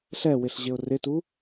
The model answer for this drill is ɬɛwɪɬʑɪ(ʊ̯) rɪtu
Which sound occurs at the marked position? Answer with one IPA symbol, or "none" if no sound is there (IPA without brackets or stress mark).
ʊ̯